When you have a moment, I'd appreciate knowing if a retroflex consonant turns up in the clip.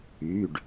yes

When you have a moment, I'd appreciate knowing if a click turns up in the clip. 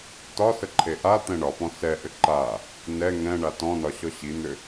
yes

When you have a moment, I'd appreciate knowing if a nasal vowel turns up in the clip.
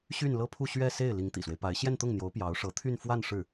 no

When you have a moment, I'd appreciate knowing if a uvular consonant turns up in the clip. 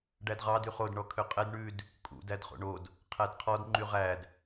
yes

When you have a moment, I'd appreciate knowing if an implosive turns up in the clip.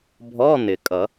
no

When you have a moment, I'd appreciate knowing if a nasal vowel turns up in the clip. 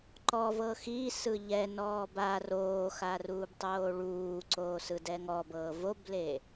no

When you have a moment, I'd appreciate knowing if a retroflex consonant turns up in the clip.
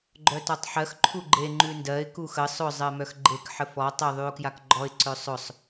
no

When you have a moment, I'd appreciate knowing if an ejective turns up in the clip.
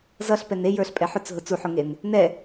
yes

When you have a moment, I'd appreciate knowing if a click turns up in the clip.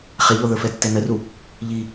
no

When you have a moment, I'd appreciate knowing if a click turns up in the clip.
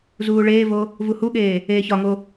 no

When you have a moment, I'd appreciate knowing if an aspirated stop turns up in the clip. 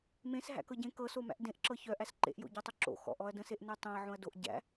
no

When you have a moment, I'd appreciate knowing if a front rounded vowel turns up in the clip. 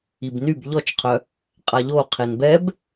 yes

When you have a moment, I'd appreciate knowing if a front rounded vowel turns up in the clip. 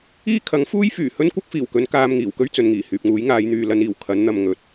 yes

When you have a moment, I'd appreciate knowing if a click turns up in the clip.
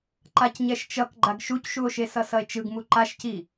yes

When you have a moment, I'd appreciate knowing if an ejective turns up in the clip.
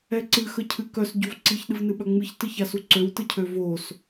no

